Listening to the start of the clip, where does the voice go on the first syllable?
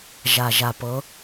low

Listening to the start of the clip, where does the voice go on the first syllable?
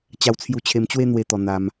high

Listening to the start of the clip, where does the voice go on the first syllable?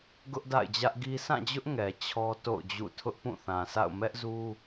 high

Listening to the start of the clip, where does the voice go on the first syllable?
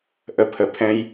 high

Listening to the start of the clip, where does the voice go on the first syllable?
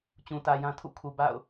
low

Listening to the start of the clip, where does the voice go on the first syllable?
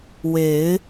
rising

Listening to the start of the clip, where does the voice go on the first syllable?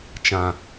low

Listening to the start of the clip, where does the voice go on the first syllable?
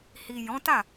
low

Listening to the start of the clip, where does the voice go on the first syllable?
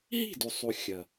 falling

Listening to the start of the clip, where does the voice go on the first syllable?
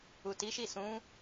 low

